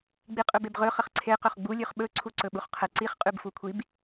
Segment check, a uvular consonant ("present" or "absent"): present